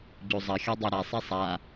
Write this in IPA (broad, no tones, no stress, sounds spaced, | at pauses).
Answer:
ɟ o zˤ ɐ xʲ ɔ dˤ ɛ ɾ a sˤ ɛ sˤ a